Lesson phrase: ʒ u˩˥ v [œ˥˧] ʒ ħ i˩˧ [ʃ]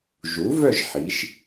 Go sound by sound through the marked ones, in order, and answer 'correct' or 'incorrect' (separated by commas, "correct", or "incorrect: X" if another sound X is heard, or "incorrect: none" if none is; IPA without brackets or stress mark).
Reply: correct, correct